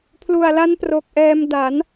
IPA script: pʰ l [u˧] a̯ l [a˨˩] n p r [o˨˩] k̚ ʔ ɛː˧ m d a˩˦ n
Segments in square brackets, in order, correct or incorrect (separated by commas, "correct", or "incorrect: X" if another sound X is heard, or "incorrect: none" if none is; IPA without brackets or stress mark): incorrect: u˨˩, incorrect: a˦˥, correct